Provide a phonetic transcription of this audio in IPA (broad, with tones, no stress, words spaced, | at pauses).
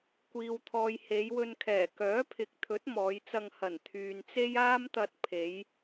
kʷiː˨wt̪ʰɔː˨j he˨˧jwɵ˧nkʰɛː˨˩ kœː˨˥pʰɪ˨˥k̚t̪ʰɵ˨˥t̚ mɔː˨˧jt͡sɐ˧ŋ hɐ˨˩nt̪ʰyː˨nt͡se˥j aː˥mt̪ɐ˧t̚ pʰe˨˧j